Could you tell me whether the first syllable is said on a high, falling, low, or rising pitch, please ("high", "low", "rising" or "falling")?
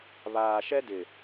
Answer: low